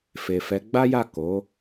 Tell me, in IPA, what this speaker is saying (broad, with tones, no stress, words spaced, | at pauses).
fe˨fɛ˨˦ ɡ͡ba˦ja˦˨ko˨˦